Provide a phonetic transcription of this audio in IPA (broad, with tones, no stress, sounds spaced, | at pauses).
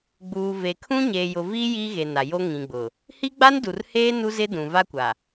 ɡ͡b uː˨ v e˨ kʰ ũ˦ ɲ eː˨ j ʊ˨ v iː˦ j iː˦ ɣ e˨ n a˨ j o˦ ŋ ĩ˨ ɡ͡b ʊ˨ | h i˦ ɡ͡b a˦ n d u˨ r h eː˦ n u˦ z ɪ˦ d ũ˨ v a˦ kʷ a˨